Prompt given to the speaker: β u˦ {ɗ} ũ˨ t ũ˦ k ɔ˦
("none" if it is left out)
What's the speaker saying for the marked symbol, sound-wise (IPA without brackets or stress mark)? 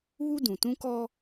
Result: d